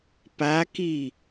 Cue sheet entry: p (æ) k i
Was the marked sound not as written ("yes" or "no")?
yes